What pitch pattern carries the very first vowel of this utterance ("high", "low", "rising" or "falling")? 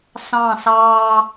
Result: falling